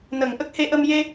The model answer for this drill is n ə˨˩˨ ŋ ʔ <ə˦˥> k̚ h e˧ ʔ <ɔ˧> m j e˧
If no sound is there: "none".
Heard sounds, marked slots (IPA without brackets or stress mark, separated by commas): ə˦˥, ə˧